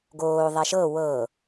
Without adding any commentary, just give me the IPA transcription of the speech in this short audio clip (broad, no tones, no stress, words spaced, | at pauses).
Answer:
ɡoː ðˤɛʃɤ wɤ